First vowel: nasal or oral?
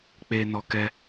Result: oral